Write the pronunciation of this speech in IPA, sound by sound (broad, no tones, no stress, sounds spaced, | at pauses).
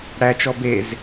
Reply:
ɽ æ t͡ʃ ɔ b e z